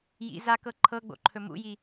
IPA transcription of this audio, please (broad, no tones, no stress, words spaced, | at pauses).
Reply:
jḭ zakɤ ǃʰɤɡ͡bo̰ǃʰɵ mṵji